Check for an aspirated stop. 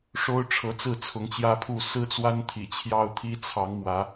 present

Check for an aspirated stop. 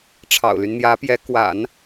present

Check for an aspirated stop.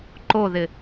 absent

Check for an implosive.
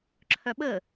present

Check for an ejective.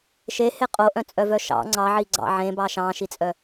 present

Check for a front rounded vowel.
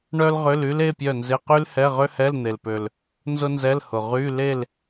present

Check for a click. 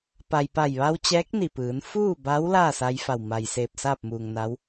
absent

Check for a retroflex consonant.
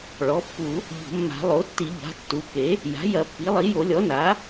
present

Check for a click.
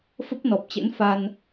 absent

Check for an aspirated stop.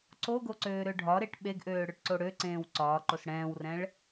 absent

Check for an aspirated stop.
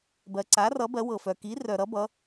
absent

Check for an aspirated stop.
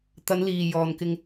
absent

